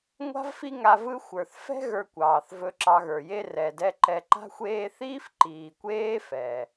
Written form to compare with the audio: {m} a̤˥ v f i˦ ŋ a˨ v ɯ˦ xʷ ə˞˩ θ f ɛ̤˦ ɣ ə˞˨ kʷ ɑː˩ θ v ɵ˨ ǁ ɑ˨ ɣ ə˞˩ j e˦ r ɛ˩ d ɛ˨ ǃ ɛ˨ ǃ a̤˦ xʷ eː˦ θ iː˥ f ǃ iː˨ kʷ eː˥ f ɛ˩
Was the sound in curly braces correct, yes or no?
no